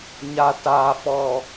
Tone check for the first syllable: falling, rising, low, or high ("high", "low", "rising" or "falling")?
low